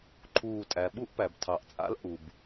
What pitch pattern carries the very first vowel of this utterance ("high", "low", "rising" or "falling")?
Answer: falling